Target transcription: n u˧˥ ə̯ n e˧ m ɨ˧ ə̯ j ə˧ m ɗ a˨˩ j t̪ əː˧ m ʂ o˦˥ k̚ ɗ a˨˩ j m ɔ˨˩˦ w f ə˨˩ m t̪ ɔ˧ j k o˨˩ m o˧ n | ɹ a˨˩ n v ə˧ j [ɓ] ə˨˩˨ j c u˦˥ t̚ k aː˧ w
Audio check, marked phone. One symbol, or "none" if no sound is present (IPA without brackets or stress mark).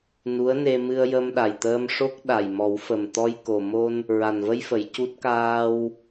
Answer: f